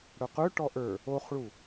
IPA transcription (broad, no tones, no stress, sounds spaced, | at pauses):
ɽ œ q ɵ ʈ ɔ ʔ ə˞ | o χ ɭ u